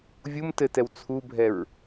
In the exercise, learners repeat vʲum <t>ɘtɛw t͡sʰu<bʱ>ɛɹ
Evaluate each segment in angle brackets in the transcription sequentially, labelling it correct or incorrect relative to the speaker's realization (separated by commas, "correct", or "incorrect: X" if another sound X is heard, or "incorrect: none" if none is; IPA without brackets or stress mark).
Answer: correct, correct